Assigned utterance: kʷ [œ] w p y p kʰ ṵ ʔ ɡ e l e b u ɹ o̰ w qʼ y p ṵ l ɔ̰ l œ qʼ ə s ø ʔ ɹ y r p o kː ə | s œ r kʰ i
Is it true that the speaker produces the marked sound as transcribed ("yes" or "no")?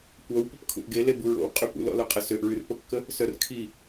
yes